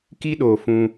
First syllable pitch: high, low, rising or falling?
high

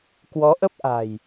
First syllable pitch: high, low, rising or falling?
rising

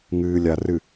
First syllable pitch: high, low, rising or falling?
low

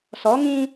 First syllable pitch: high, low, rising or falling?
rising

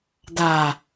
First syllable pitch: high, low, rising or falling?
low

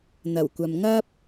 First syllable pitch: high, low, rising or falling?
low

